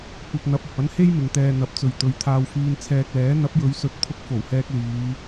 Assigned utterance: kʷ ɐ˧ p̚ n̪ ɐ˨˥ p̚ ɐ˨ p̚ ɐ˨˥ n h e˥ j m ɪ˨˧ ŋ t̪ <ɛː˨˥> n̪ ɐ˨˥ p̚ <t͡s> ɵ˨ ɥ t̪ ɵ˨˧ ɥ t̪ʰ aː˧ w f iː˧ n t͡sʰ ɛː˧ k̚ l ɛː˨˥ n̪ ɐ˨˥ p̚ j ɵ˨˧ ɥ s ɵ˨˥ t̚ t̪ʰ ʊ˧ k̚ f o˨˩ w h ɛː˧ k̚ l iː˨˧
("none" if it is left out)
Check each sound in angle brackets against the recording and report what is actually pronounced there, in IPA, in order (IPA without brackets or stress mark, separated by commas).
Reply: ɛː˧, t͡s